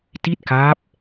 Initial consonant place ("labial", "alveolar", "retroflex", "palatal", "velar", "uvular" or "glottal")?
alveolar